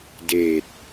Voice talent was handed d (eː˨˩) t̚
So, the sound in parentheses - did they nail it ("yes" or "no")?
yes